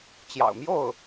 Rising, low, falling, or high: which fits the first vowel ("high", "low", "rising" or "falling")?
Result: low